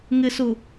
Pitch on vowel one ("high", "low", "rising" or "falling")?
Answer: low